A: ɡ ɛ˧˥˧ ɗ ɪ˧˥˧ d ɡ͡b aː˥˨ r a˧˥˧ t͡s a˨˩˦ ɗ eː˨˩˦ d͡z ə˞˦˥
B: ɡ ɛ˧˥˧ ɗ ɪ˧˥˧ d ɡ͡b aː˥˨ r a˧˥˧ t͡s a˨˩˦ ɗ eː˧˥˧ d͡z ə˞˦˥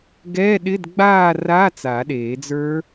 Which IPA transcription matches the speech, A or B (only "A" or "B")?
A